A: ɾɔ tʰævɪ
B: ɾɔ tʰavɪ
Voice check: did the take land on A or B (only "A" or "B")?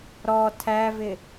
A